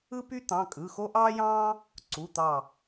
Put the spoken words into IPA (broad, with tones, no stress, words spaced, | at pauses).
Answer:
ɯ˥py˥t̪ɑ̃˩˧˩ kʼɯ˩˧˩xo˥ʔɑː˥jɑ̃ː˥ | ǀu˩˧˩t̪ɑ˧˩